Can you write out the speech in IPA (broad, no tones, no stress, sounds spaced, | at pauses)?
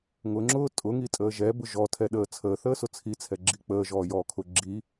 ŋ ʊ ŋ͡ǁ ʊː tʼ ʊ ŋ i tʼ əː ʒ ɛ b ʊ ʒ ɔ tʰ ɛ ɗ əː t͡sʰ əː θ əː s ʊ t͡sʰ i t͡sʰ ɛ ɡ͡ǁ i k͡p əː ʒ ɔː j ɔː kʰ ʊ ɡ͡ǁ i